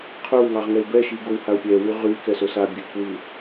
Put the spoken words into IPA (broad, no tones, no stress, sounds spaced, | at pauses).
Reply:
qʰ ɵ w ŋ ɑ ʁ ŋ ɛ ɪ̯ b ɛ ʃ i ɡ o w h a ʊ̯ pʲ ɛ w y ʁ y k ɛ s ɵ s a bʲ ɨ k w ɨ